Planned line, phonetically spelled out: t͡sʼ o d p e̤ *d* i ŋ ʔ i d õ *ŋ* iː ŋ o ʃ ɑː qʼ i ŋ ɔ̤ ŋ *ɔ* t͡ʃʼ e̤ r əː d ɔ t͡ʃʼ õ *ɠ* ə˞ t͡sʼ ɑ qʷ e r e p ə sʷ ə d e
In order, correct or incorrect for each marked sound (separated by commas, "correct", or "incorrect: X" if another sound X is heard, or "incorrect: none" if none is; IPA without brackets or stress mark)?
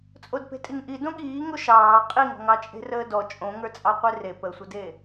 incorrect: tʼ, incorrect: ɠ, incorrect: ɑ, incorrect: ŋ